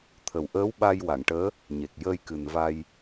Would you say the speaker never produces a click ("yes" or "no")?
yes